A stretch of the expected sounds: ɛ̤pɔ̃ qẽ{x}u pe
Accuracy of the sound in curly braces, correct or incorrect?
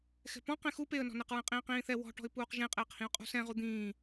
correct